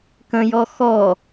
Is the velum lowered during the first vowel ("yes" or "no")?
yes